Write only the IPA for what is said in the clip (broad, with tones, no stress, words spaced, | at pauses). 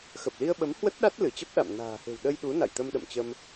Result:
xə˨˩p̚li˧ə̯ɓə˨˦m hwə˦˥t̚ɗa˦˥t̚ lɨ˧˩t͡ɕə˦˥p̚ ɗa̰˧˨m na̤ː˨˩he̤˨˩wɗə˧j ɗu˨˦ na̰˧˨jt̪ə˧mɗə̰˧˨mt͡ɕə˧m